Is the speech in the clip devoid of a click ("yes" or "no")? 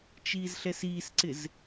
no